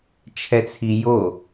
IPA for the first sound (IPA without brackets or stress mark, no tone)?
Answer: t͡ʃʰ